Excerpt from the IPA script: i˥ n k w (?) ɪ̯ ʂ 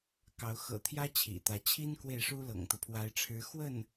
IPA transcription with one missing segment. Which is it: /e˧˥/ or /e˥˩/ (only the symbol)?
e˥˩